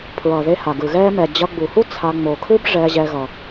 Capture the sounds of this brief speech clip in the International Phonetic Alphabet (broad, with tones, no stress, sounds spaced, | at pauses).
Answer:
pʰ ɹ ʌ˩ ð e˨ h a˩ ɡ ɯ˩ ɣ ɛː˦ m ɛ˩ d͡ʑ ʌ˨ ɡ͡b u˩ h u˦ t͡sʰ a˨ ŋ͡m o˩ kʰ ɯ˦ b ʐ ɛ˨ ʑ ɛ˨ ɣ ʌ˩